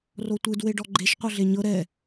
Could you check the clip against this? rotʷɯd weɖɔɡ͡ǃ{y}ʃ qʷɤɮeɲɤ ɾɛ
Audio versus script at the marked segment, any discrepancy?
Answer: yes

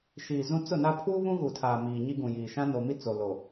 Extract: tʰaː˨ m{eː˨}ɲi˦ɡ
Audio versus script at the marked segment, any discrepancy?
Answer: yes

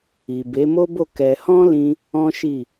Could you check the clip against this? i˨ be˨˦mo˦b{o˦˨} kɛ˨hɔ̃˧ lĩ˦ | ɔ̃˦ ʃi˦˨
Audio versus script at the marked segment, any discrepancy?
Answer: no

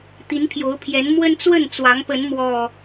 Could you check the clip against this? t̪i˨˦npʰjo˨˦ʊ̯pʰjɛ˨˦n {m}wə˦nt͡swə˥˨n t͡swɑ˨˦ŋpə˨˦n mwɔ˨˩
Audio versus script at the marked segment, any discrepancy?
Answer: no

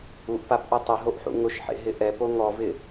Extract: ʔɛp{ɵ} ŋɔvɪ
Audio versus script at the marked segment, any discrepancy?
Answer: yes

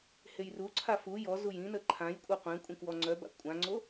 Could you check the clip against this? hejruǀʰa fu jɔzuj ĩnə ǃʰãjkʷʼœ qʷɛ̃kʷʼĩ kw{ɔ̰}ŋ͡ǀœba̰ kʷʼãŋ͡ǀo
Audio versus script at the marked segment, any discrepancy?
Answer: yes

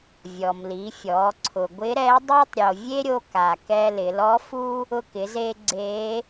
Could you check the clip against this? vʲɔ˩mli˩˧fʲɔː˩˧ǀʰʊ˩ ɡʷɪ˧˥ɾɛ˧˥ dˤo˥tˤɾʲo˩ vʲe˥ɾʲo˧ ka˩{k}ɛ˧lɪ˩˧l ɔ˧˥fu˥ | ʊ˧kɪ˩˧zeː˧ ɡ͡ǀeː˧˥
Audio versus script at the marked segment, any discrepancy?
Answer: no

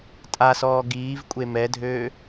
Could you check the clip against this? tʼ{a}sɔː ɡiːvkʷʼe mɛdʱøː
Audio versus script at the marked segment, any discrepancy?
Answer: no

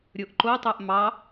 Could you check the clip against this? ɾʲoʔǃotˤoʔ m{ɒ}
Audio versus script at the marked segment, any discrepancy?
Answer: yes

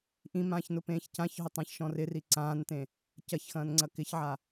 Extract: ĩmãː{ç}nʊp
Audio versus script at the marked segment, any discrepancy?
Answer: no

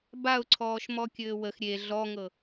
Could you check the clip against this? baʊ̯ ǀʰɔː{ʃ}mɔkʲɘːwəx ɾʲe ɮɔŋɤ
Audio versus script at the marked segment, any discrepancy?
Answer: no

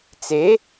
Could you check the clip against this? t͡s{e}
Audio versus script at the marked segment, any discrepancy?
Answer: no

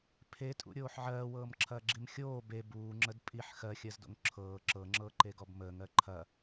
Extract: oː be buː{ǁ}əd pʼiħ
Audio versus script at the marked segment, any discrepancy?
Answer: yes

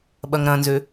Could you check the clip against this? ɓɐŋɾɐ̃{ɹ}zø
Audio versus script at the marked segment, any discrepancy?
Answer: yes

